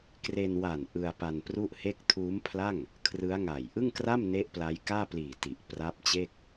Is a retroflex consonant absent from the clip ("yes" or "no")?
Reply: yes